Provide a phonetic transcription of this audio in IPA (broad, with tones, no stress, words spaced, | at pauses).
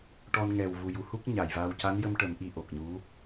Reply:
ʈɔ˧nŋɛ˨˩w vu˨˩ju˨˩˦hu˦˥k̚ ɲa˨˩˨jva˧w ca˧˥njə˧mʈə˨˩˦m ʔi˧ʔo˨˩k̚ɲu˧˥